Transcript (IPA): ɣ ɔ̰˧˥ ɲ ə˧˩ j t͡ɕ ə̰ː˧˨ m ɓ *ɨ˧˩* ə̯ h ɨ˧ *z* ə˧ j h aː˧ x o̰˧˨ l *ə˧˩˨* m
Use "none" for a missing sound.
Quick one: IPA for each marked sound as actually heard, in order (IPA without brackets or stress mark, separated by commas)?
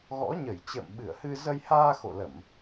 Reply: ɨ˧˩, z, ə˧˩˨